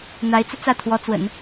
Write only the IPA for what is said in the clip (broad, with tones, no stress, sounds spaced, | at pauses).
n̪ a˧˥ ɪ̯ t͡s u˧ t͡s ä˥˩ t̪ʰ w ɔ˧˥ t͡s w ə̰˨˩˦ n